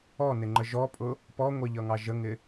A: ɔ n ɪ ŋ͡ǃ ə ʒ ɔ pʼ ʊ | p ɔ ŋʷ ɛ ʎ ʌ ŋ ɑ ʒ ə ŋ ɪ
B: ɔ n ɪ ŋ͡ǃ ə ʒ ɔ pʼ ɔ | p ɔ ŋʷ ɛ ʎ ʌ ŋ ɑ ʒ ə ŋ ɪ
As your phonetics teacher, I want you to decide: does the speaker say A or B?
A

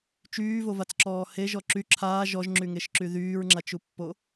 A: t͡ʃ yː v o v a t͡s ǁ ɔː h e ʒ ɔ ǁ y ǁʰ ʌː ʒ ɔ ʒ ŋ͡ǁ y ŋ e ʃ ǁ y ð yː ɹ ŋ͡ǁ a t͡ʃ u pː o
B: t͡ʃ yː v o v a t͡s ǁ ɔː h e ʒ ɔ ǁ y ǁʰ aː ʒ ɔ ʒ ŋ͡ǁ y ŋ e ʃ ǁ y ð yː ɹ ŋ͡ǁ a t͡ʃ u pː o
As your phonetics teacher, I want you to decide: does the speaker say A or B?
B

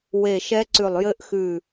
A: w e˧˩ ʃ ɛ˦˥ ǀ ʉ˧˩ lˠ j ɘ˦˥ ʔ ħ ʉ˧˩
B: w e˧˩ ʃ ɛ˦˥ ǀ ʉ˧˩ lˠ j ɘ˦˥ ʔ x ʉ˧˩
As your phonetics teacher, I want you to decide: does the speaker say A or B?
B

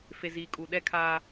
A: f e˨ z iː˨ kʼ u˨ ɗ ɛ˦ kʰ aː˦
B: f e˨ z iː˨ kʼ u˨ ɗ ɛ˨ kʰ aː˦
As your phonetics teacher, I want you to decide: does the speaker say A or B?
A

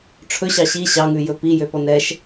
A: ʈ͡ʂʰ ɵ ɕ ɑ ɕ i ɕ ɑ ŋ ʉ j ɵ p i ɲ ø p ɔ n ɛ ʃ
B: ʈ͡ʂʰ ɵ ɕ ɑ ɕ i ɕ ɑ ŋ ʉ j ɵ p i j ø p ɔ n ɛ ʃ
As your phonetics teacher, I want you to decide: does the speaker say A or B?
B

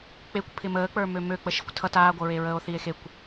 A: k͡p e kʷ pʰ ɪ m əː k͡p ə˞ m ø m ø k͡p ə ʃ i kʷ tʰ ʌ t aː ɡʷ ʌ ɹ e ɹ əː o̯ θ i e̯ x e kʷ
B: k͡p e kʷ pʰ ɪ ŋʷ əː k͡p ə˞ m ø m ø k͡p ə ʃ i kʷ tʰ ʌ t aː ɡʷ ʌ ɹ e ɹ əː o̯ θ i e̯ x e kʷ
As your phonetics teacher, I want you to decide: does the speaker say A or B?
A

